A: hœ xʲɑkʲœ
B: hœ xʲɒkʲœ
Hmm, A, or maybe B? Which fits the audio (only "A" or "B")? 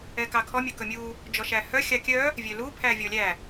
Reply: A